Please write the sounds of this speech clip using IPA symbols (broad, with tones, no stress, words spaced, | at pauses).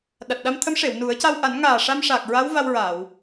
ɗa˨˩t̚ɗa˧mt̪ʰə˧˥mʂe˨˩˨w nu˨˩˦ə̯ ca˧wʔa˨˩˦nŋaː˨˩ ʂa˧mʂa˨˩k̚ ɹa˧˥wva˧wɹa˨˩˨w